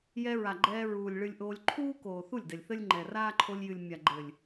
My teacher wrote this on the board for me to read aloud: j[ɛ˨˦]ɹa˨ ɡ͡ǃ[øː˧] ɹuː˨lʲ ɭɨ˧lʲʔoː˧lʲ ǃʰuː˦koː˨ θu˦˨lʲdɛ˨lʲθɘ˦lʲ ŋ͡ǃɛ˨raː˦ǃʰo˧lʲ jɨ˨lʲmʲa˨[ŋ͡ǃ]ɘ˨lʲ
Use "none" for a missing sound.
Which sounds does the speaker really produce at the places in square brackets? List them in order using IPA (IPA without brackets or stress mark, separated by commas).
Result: ɛ˧, ɛː˧, ɡ͡ǃ